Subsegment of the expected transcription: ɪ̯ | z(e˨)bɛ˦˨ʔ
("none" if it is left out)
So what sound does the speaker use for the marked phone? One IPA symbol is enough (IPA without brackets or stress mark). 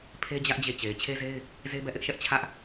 e˦